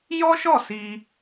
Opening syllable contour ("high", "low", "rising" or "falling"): high